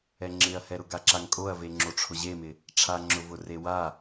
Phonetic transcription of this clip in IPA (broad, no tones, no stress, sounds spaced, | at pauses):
ɛ ŋ͡ǁ ɪ ɐ̯ h ɛ ɾ ʊ ɡ a ǁ a ŋ kʼ o ɐ̯ v e ŋ͡ǁ o ʈ͡ʂʰ ʊ ʑ e m ɪ | ʈ͡ʂʰ a ŋ͡ǁ ʊ v ʊ r e w a